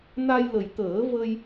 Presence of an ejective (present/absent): absent